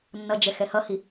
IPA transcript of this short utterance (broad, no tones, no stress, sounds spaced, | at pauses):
nː ʌ d͡ʒ ɛ x ɛ h ʌ h i